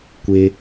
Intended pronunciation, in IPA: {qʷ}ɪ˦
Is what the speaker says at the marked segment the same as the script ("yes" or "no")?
no